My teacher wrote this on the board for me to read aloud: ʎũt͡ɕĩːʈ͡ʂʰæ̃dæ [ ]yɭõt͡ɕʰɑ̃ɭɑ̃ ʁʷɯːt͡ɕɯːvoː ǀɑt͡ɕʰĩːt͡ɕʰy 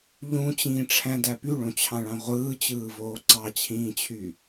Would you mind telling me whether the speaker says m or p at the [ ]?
p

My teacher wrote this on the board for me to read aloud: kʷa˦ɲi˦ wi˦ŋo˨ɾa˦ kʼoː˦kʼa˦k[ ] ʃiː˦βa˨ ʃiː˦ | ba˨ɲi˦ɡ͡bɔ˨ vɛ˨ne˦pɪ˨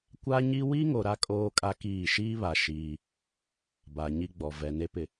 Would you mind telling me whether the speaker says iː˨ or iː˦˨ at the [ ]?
iː˦˨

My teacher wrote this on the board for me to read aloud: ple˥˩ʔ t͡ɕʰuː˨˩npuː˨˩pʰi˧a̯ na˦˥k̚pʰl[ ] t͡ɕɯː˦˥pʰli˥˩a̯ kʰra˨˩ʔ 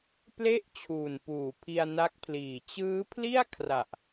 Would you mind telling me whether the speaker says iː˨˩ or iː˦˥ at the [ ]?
iː˨˩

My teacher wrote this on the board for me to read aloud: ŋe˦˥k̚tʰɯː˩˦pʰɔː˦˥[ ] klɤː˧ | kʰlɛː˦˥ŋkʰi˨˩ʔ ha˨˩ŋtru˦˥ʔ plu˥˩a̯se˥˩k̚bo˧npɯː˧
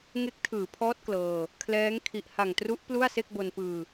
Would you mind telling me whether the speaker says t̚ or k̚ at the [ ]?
t̚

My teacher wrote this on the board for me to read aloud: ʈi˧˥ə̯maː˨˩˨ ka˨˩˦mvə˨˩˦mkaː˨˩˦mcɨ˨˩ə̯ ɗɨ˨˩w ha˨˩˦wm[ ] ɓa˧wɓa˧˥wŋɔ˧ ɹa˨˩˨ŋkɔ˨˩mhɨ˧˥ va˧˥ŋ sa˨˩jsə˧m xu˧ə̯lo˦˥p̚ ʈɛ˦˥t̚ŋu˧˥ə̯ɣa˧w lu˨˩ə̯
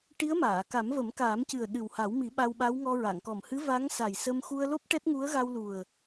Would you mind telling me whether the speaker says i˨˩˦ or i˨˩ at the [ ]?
i˨˩˦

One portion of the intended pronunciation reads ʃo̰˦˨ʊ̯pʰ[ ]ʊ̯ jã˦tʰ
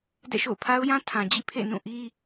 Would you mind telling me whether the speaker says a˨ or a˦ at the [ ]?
a˦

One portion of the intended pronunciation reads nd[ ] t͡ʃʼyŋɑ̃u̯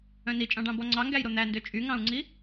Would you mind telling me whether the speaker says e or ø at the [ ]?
ø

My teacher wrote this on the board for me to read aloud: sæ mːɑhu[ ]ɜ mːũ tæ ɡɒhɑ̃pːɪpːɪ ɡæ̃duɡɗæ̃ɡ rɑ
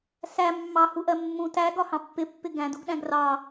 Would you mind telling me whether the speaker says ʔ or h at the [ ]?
ʔ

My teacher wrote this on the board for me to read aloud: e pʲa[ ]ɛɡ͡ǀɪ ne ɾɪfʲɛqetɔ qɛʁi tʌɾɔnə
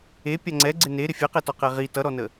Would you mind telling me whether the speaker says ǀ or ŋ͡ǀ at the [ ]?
ŋ͡ǀ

